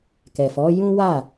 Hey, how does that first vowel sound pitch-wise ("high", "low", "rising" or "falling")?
low